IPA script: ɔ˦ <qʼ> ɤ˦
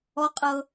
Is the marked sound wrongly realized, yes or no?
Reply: no